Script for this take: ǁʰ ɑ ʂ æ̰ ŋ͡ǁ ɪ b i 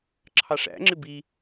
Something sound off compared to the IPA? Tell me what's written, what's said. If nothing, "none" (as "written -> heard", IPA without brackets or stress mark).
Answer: none